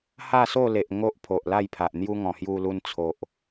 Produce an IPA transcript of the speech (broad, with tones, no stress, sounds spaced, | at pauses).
h a˥˧ s o˥˧ l e˨ ʔ ŋ o˦ ʔ pʰ o˨ ʔ l a˥˧ j pʰ a˨ ʔ n̪ j u˦ ŋ ɔ̃˨˩ h j u˧ l u˧ n t͡sʰ o˨ ʔ